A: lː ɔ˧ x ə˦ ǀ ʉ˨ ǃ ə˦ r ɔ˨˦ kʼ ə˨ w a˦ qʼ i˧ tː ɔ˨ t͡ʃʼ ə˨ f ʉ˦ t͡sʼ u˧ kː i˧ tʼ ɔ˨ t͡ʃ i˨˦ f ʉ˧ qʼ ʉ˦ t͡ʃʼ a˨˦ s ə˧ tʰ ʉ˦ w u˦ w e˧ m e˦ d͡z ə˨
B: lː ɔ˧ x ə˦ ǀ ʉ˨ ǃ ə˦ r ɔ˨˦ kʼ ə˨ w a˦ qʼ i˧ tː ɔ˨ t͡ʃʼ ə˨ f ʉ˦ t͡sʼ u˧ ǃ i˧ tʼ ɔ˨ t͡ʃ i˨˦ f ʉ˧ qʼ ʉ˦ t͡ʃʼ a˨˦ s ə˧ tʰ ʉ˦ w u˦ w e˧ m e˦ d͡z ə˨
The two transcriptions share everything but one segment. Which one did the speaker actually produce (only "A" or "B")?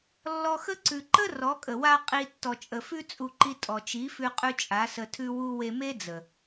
B